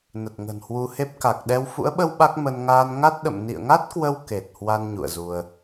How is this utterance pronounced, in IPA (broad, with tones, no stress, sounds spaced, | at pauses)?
n ə˨˩ t̚ ŋ ə̤˨˩ n h w u˧ h e˦˥ p̚ k a˨˩ k̚ ɗ ɛ˧ w f ṵ˧˥ ə̯ ɓ ə˧ w ɓ a˦˥ k̚ m ə˧ n ŋ aː˧ n ŋ a˦˥ t̚ ɗ ə̰˧˨ m n ḭ˧˨ ə̯ ŋ a˦˥ t̚ k w ə˧ w k e˨˩ t̚ h w a˧ n ɲ ṵ˧˨ ə̯ z u˧ ə̯